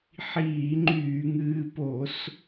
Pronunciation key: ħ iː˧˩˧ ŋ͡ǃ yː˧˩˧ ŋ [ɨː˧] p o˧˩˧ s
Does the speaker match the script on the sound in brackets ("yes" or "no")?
yes